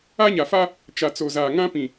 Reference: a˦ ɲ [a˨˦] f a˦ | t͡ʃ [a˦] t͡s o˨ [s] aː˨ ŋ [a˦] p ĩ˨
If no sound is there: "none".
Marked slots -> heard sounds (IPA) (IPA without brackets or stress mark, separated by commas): a˨, a˨, z, ã˦